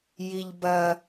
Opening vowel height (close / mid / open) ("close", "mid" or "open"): close